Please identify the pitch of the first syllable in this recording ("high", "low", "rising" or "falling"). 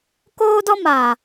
high